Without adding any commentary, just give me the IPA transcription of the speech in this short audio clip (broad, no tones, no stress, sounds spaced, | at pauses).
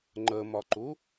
ŋ͡ǃ ə m ɒ ǃ u